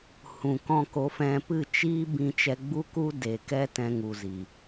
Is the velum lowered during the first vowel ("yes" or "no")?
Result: yes